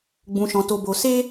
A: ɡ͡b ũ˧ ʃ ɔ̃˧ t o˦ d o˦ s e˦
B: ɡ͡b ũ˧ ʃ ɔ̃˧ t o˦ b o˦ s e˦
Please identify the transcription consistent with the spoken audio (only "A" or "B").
B